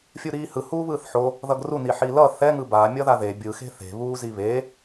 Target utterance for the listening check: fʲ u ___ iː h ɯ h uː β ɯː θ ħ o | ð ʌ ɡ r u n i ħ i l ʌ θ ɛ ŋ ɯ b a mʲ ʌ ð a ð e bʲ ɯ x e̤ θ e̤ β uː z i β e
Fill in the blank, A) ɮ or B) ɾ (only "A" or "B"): B